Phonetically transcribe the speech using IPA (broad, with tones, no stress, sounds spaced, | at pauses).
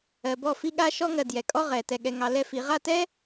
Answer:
ɜ˨ b ɔ˦˨ f i˦ ɠ a˦ ʃ ɔ˦ ŋ ɜ˨ d j ɛ˨ kʼ ɔ˦ ʁ ɛ˨ t ɛ˨ ɠ ɛ˨ ŋ ɑ˨ l ɛ˦ f i˨˦ ʁ a˦˨ t ɛ˦